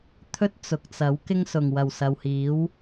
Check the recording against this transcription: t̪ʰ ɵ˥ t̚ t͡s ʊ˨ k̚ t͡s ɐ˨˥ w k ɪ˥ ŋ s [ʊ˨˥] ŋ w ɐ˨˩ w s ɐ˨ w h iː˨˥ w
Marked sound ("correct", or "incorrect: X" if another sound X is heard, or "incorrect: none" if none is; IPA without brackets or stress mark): incorrect: ʊ˨˩